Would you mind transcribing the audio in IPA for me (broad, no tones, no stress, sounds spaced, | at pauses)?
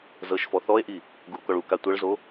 z ɤ ʃ f ɔ θ ɔ e̯ ʔ i | ɡ u o̯ k ɔ ɭ u k a tʷ ɤ ɭ z o